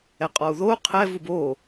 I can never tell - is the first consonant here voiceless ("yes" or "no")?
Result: yes